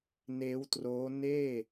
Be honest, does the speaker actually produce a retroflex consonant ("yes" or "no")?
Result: no